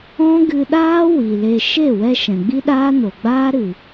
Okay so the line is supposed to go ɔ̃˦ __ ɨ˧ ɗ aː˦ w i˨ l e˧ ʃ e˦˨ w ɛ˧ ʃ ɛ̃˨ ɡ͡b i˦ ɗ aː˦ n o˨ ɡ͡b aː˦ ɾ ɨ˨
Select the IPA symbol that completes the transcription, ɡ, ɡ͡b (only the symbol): ɡ